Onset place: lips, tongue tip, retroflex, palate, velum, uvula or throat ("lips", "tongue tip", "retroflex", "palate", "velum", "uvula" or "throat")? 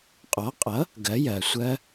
uvula